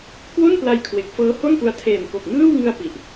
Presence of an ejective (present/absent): absent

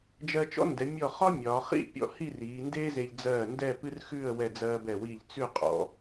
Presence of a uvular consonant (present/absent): present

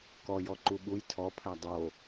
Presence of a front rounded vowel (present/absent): absent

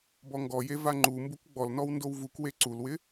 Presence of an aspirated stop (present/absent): absent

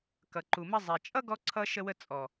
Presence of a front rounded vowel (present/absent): absent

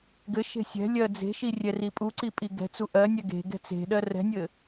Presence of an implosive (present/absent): present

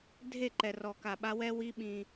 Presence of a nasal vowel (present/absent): present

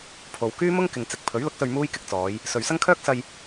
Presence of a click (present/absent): absent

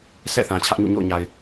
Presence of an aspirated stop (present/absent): present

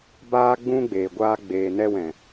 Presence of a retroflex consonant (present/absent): absent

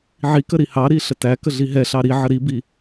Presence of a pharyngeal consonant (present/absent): present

